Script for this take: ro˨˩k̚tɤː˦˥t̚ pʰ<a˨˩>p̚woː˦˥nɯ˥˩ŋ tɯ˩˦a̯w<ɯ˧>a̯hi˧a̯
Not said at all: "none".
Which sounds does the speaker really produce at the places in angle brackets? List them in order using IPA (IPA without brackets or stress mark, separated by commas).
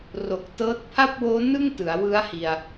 a˥˩, ɯ˦˥